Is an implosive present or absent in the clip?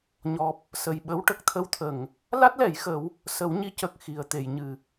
present